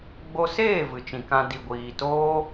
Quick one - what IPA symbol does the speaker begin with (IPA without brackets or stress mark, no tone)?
ɡ͡b